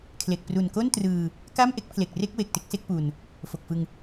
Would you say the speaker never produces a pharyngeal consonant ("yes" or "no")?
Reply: yes